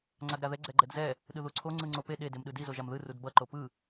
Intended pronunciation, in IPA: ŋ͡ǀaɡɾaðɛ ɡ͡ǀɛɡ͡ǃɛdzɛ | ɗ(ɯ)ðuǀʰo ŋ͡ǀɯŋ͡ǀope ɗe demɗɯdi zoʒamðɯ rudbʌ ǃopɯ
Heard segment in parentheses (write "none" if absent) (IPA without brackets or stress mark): ɯ